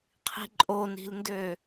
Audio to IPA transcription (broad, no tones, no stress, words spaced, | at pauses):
qʰi̤ǃʼoni̤lndø